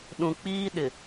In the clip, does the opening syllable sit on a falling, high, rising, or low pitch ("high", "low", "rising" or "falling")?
low